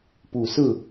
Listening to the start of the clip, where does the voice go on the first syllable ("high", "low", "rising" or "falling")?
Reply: low